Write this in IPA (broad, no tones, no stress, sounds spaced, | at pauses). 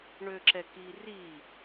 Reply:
ɳ ø ǁ ɛ k i r i